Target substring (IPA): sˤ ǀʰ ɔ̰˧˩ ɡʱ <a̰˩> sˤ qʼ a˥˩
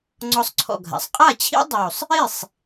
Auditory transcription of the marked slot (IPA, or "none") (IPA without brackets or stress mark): a̰˩